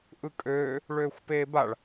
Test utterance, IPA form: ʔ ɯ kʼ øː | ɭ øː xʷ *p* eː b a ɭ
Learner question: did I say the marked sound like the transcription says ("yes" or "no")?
yes